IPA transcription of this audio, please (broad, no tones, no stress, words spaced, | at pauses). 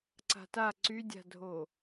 ǀa̤ta ǀydʲa̤dʱo